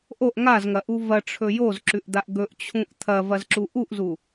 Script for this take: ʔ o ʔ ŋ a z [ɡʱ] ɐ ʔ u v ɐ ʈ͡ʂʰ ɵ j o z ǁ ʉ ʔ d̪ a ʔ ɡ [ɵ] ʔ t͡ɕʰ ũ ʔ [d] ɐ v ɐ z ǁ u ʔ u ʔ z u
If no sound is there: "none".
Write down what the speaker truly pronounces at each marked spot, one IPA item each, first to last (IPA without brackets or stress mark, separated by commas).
ŋ, ɵ, t̪ʰ